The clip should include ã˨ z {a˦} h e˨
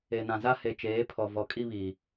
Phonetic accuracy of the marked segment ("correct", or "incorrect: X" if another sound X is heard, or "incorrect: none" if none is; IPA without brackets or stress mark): correct